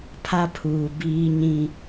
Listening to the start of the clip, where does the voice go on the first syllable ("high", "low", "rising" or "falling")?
high